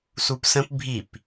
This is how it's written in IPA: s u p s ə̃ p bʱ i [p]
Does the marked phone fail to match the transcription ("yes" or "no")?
no